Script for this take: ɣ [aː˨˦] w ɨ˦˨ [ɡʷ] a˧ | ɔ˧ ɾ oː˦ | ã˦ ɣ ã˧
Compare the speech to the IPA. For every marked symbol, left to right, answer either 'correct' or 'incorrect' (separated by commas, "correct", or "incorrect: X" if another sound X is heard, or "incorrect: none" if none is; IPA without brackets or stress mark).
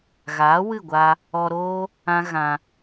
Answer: correct, correct